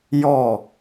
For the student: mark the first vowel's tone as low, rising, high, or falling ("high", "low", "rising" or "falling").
falling